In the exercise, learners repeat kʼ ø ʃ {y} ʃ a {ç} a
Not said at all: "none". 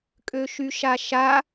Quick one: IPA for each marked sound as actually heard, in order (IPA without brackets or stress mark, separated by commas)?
y, ʃ